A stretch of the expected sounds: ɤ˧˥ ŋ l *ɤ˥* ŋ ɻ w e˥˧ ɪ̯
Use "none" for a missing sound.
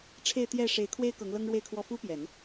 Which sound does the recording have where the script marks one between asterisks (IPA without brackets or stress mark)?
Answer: ɤ˥